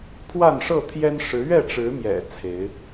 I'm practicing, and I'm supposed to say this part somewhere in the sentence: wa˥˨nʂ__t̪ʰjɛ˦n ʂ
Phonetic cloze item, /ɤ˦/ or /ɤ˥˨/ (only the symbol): ɤ˥˨